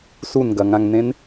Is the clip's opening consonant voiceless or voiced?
voiceless